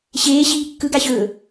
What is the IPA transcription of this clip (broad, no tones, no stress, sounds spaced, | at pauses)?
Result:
ɕ eː ɕ iː kː ɯ ɡ a ɕ ɵː